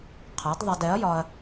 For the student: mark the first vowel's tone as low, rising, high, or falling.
rising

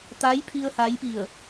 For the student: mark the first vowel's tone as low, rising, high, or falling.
rising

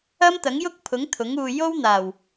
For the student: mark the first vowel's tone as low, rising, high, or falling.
high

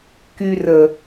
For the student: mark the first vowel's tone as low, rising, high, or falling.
low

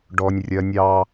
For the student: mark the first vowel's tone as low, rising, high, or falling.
high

